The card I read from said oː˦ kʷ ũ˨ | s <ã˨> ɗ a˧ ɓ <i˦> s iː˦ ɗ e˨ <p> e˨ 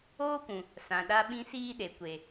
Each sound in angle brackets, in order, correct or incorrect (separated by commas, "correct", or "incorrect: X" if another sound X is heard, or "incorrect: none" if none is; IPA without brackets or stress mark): correct, incorrect: ĩ˦, incorrect: kʷ